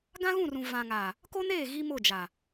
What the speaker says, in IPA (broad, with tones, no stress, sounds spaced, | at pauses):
ɡ ã˦ ɣ ũ˦˨ r ũ˨ v ã˨ ŋ a˨ | k o˦ n eː˦˨ ɣ i˦ m ʊ˦˨ d͡ʒ a˨